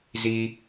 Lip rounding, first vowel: unrounded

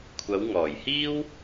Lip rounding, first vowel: unrounded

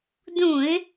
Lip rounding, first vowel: rounded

